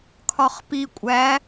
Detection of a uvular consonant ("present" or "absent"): present